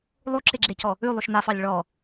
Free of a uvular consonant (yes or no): yes